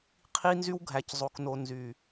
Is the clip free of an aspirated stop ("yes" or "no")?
no